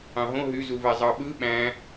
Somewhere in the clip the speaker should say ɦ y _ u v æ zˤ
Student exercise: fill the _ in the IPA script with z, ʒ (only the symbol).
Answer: z